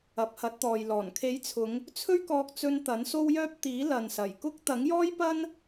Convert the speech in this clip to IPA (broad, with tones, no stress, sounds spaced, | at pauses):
ɐ˨˥ p̚ h ɐ˨˥ t̚ t̪ ɔː˨ j l ɔː˨˩ n kʰ e˨˥ j t͡sʰ ʊ˨˧ ŋ | t͡sʰ ɵ˥ ɥ k ɔː˧ k̚ t͡s ɵ˧ n t̪ ɐ˨˥ n s o˥ w j œː˥ p̚ t̪ iː˨˥ l ɐ˨ n s ɐ˨˩ j k ʊ˥ k̚ t̪ ɐ˨˥ ŋ j ɔː˥ j p ɐ˥ n